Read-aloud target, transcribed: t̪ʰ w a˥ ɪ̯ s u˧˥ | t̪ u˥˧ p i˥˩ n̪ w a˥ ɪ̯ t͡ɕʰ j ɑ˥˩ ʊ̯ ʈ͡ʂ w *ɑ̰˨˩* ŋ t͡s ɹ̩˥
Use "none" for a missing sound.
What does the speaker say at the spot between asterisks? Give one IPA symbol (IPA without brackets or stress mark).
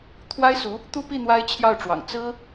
ɑ̰˨˩